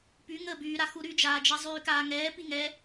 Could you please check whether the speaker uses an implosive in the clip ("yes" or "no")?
no